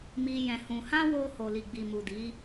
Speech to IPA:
mi˧ jɛ̃˧hũ˧ hã˦wo˧ ho˨li˨ ɡ͡bi˨mu˨di˨˦

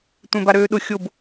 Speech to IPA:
tʷẽbaɾøːɗʊ xʲob

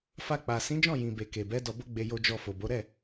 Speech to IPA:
fa˧k͡pa˨ sĩ˨˦d͡ʒɔ̃˦˨ jĩ˨be˨ ke˨bɛ˨˦ dɔ˧ bo˦ɡ͡be˧ jo˧d͡ʒɔ˧ fo˨bo˨˦ ɾɛ˦˨

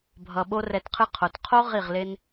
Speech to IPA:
bʱʌ˨ ɓo˦rɛ˧tqʰɯ˦ qʰo˨t qʰo˦ ʁi˦˨ʁle˦n

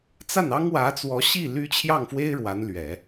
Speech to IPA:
t͡sa˥˩nɑ˥ŋ wä˧˥t͡swɔ˧˥ɕi˥˩ ly˥ t͡ɕʰjɑ˥˩ŋfwe˥ɪ̯ ɻwa˧˥nlɥɛ˨˩˦

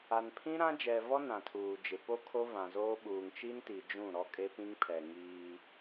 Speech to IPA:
a˨npʰĩ˦ ɾã˦d͡ʒɛ˨vɔ˦ nã˨tʰuː˨d͡ʒɪ˨ po˦kʰo˦vã˨zoː˦ ɓuː˨ŋt͡ʃi˦nti˨ d͡ʒũ˦˨ɾɔ˦kʼe˦pĩ˦ŋ pʰɛ˨ŋiː˦

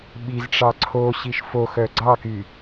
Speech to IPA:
ɓizʈ͡ʂɑ ǀʰoɕiʃ foxœ ɡ͡ǀɑky

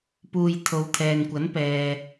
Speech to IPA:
puː˨jt̪ʰo˨˧w t̪ʰɛː˨nkʷɐ˨˥n pɛː˨

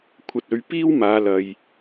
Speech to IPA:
kʷʰɐ˨t̚ɵ˨˧ɥ piː˥wmaː˨˧lɐ˨j

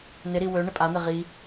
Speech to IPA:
nɪɾi wø ɳɪpʼan̪ɪ ʁi

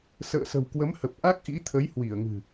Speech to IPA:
sə̰ː˧˨sə̤˨˩wkwə˨˦mhə˨˩p̚ ʔa˦˥k̚ʔḭ˧˥t̪ʰə˨˦j hwi˧˩ə̯ŋɨ̤˨˩

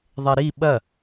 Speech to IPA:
ðˤɛɾi ɓɐ

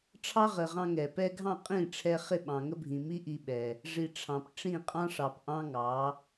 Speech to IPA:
ʈ͡ʂʰɑ˦ʁə˨ʁɑ̃˧ ŋɛ˨pɛ˦ ɡʱɑ̃˦˨qʼĩ˦˨ʈ͡ʂʰɛ˧ χɪ˦˨ɓɑ̃˨ŋə˦bʱĩ˨ mi˦ ʔi˧ɓɛ˨ | ʐi˧ʈ͡ʂʰɑ̃˨p ʈ͡ʂĩ˦˨qʼɑ̃˦ʂɑ˨p ʔɑ̃˦ŋɑ˨˦

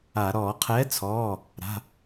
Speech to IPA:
a˧˩˧ ɾɔː˧˩˧qʰɛː˨˥t͡sʰɔː˩˧˩ | ɾa̤˩˧˩

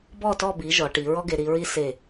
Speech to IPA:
bɔ˦˨tɔ˦˨bi˩˧ ʒɔ˩˧ʈi˩˧ ɹɔ˥ɡe˩˧ɾi˩˧ɹi˥ se˦˨

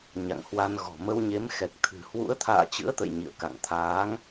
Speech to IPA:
ɲa̰˧˨ŋhwa˧nɣɔ̤˨˩ mə˧wɲe˨˦m xɛ˨˩k̚t̪ʰɨ̤˨˩ hwṵ˧˥ə̯t̪ʰa̰ː˧˨t͡ɕɨ̰˧˥ə̯ t̪ə̰˧˨jɲḭ˧˨ə̯ ka̰˧˨ŋ t̪ʰaː˨˦ŋ

